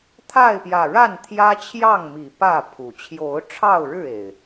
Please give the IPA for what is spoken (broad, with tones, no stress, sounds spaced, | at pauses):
t̪ʰ a˥˨ ɪ̯ p j ä˨˩ ɻ a˥˨ n t̪ʰ j ä˦ t͡ɕʰ j ɑ˥˨ ŋ m i˨˩ p ä˥˨ pʰ u˨˩ t͡ɕʰ j o˨˦ ʊ̯ ʈ͡ʂʰ ɑ˥˨ ʊ̯ ɻ ɻ̩˥˨ e˨˩ ɪ̯